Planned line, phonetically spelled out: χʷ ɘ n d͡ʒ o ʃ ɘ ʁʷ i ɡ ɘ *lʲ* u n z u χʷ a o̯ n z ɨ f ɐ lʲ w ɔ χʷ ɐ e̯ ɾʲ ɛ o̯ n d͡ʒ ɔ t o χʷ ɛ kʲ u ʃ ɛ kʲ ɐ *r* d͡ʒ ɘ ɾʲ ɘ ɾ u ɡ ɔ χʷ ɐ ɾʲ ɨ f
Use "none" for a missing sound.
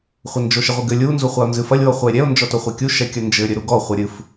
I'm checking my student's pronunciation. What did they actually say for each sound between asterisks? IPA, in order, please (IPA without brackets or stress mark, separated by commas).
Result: lʲ, n